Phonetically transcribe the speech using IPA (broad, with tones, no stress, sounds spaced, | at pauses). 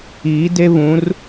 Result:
iː˨˦ d e˦ β ũ˨˦ r